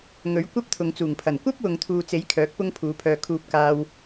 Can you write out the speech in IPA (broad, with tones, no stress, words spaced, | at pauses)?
ŋɵ˨˥ɥ kʷɐ˥p̚t̪ʰʊ˨ŋt͡suː˨˩ŋpʰɐ˨˩n kʷɐ˥p̚wʊ˨ŋ t̪ʰuː˨t͡se˨˥j kʰœː˨˥k̚pʊ˥ŋ pʰuː˨˥pʰœː˧ kʰuː˧p̚kaː˧w